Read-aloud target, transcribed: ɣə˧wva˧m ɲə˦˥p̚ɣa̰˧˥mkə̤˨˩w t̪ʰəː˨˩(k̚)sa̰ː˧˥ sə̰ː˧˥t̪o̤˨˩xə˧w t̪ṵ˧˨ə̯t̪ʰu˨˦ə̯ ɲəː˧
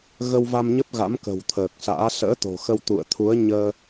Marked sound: correct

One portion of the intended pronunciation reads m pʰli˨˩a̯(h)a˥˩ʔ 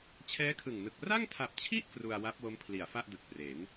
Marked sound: incorrect: f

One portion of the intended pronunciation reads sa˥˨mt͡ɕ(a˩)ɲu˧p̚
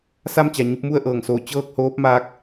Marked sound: correct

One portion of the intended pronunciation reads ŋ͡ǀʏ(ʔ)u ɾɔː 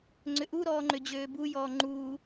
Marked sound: correct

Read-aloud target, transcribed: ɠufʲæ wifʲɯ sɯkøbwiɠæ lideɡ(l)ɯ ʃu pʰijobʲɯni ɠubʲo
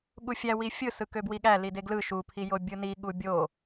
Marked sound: correct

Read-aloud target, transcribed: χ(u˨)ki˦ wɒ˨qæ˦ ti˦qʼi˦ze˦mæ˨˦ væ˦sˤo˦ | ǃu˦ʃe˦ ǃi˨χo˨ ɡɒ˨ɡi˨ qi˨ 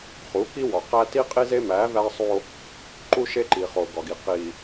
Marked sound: incorrect: u˨˦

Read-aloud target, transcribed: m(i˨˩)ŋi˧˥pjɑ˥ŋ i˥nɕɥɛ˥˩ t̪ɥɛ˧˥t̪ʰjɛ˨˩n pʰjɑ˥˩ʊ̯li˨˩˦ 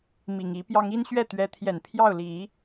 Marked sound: correct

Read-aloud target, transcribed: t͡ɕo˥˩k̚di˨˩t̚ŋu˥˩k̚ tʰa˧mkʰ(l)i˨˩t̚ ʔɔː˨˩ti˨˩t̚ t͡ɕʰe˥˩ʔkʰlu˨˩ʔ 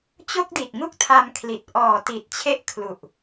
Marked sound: correct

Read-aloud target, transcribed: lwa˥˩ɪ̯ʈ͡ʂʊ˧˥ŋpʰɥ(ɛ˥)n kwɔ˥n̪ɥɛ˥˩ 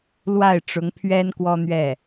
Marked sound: correct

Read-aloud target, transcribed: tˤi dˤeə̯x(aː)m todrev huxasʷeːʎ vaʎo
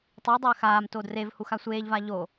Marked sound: correct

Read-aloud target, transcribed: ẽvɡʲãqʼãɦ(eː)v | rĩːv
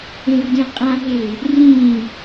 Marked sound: correct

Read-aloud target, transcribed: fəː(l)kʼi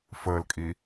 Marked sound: correct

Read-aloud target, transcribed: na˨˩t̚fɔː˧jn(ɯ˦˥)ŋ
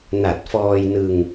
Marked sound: incorrect: ɯ˧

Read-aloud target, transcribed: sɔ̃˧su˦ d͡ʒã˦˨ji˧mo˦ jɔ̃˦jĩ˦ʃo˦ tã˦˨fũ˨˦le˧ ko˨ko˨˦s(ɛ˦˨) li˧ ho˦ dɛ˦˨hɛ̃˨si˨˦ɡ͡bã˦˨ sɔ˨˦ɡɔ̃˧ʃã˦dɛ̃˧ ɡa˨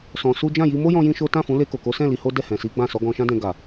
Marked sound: incorrect: ɛ̃˦˨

